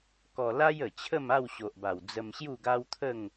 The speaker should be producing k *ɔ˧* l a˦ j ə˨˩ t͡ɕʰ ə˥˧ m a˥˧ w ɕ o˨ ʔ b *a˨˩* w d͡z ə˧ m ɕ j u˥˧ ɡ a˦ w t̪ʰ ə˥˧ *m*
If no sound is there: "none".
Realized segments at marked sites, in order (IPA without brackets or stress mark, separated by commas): ɔ˧, a˨˩, ŋ